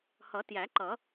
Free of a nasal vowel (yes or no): yes